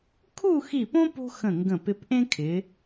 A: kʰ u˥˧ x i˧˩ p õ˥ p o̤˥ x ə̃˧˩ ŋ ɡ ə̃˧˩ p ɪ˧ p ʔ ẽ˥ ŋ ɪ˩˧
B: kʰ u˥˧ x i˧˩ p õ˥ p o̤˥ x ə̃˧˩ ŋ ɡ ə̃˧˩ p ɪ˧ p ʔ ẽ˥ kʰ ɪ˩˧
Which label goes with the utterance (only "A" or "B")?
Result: B